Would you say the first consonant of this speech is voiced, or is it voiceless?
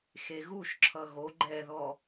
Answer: voiceless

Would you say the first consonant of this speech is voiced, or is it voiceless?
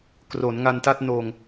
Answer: voiceless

